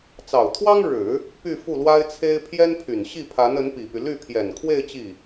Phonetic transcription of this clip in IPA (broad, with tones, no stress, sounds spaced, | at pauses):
t͡s ɑ˨˩ ʊ̯ t̪ʰ w ɑ˥ ŋ ɻ ɻ̩˨˩˦ | p y˥˧ f u˥˩ l w a˥ ɪ̯ t͡sʰ e˥ ɪ̯ pʰ j ɛ˥ n pʰ y˨˩ n ɕ i˥˩ pʰ a˧˥ n ə˧˥ n p i˨˩ p y˦ l y˥˩ pʰ j ɛ˨˩ n kʰ w e˥˧ ɪ̯ t͡ɕ i˥˩